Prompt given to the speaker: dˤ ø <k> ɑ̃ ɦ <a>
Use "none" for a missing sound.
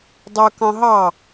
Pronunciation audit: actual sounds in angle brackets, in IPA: k, ɑ

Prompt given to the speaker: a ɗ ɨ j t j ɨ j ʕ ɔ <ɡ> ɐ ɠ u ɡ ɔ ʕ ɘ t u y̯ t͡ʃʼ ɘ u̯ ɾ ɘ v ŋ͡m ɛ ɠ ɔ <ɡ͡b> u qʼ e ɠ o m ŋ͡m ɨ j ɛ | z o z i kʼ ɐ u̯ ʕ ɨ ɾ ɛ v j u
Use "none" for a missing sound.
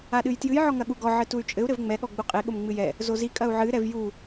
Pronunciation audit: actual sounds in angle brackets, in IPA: ŋ, ɡ͡b

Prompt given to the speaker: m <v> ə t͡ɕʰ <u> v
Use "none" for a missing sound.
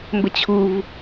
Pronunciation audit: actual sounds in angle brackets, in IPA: b, u

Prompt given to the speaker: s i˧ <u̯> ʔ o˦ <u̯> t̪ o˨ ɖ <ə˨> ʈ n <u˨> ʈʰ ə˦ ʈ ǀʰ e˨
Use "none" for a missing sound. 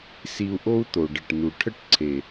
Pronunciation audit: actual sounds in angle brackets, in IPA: u̯, u̯, ə˨, u˨

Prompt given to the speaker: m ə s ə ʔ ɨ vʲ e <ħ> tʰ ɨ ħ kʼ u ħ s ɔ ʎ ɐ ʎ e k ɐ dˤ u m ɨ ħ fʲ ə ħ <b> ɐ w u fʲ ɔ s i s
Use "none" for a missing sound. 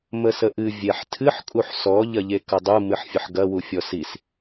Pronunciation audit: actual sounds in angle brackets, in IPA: ħ, ɡ

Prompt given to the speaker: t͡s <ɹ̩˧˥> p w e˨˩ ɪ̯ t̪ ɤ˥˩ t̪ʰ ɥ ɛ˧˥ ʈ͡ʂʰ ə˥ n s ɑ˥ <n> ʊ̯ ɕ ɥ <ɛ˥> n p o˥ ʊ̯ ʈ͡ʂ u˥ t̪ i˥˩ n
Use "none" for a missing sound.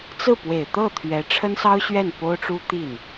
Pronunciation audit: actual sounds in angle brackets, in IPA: ɹ̩˥˩, none, ɛ˥˩

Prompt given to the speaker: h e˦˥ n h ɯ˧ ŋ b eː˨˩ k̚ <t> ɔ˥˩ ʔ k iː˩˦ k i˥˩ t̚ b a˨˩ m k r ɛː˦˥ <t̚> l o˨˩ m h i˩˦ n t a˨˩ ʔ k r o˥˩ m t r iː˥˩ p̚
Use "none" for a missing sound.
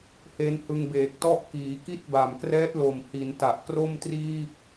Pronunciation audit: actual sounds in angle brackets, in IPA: t, t̚

